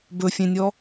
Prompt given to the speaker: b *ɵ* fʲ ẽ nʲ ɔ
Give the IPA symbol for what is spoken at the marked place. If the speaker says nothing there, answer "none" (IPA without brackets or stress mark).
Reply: ɵ